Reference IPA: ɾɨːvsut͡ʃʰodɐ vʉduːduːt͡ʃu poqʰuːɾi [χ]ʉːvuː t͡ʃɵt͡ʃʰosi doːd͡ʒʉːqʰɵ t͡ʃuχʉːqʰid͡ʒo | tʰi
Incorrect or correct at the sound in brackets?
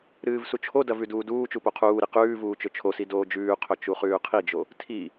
incorrect: q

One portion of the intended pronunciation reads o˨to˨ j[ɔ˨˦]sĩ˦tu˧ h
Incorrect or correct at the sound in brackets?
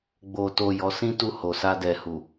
correct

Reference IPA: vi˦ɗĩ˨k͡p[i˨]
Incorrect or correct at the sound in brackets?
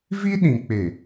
incorrect: e˨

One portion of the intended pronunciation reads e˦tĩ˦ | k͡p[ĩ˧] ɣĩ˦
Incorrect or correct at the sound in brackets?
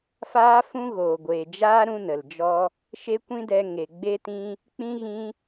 incorrect: ĩ˦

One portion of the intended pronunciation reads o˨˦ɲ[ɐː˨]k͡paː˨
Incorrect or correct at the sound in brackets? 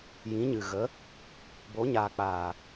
incorrect: aː˨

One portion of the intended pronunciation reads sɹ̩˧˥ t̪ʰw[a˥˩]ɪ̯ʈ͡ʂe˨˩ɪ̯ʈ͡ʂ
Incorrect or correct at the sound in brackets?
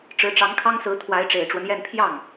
incorrect: a˧˥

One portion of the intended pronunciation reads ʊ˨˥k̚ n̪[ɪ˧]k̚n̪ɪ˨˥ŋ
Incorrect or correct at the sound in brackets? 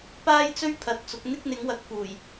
incorrect: ɪ˥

